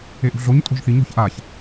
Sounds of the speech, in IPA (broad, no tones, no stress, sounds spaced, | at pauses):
e ʔ ṳ ɮ o ɲ tʼ o̤ ʒ θ i ɲ ɔ̤ ç ʔ a ç